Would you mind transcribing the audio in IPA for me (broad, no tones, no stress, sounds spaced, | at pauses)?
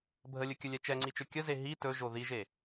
bʱ ə lʲ ɵ kʲ ə lʲ ɛ t͡ʃ ɛ ŋ͡ǀ i t͡ʃ ɵ kʲ ə z e ɦ i t ɵ ʒ o ð i ʒ e